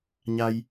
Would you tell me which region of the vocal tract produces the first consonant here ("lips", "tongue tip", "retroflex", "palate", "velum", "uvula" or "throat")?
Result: palate